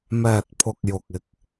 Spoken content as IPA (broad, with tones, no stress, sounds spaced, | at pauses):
m ɛː˨ t̚ pʰ ʊ˨ k̚ j ʊ˨ k̚ ɪ˧ k̚